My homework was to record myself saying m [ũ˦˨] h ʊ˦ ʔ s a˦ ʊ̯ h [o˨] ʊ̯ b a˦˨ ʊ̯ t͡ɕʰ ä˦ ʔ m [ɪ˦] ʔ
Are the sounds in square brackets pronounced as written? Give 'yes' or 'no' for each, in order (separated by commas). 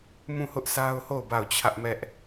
yes, no, no